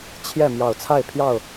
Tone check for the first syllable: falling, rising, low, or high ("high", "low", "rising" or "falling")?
falling